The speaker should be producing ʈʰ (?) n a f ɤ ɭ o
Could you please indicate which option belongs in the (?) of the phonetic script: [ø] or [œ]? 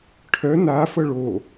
œ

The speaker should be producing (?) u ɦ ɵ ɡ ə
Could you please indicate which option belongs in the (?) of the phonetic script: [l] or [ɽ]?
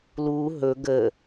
l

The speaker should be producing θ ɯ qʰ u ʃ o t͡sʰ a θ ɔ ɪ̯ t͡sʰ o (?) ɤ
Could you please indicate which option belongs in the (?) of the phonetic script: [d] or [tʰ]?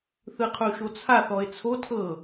tʰ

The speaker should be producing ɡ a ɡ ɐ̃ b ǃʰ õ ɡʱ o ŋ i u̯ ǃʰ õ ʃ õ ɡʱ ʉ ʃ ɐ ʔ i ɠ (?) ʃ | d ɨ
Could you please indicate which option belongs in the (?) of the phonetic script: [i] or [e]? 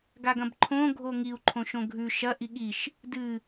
i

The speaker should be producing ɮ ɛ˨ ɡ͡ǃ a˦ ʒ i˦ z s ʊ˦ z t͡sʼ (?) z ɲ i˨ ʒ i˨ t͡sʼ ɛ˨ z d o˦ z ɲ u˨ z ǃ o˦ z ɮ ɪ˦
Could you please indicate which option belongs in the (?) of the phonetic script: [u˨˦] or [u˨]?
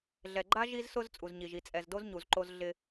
u˨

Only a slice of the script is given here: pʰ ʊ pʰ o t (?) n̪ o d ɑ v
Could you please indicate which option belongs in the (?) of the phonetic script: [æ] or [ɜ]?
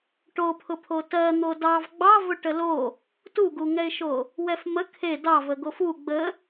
ɜ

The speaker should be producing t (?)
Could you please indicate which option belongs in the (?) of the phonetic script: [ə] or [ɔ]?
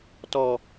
ɔ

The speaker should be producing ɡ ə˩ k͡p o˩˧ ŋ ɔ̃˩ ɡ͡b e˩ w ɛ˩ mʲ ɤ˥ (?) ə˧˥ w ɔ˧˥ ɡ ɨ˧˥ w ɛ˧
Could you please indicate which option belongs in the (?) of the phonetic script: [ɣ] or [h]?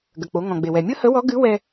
h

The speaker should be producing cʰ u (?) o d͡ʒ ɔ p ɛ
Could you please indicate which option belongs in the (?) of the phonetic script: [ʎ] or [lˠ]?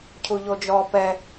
ʎ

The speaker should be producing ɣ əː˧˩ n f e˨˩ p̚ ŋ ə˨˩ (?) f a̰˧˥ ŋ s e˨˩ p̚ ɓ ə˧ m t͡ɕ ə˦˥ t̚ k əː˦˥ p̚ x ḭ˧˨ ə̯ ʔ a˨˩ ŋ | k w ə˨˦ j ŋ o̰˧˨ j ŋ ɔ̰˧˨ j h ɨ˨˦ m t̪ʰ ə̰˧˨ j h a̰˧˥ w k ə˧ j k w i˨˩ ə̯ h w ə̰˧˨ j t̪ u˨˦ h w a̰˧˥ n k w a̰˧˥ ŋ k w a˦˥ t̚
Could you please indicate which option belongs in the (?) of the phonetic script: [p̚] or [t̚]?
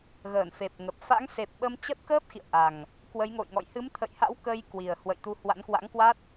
p̚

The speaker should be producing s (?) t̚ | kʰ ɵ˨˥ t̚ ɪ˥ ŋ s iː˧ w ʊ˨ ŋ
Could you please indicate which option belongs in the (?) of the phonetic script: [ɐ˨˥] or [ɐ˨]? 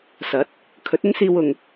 ɐ˨˥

